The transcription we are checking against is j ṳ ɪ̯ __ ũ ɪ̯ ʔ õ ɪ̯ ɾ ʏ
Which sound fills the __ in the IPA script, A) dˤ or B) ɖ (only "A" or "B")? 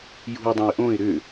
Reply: A